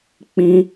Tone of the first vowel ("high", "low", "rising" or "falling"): high